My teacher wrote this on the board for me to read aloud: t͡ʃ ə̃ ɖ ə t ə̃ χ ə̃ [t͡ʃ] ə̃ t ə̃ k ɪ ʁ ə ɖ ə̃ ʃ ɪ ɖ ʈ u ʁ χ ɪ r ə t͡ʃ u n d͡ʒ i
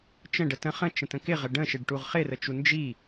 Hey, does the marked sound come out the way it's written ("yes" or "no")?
yes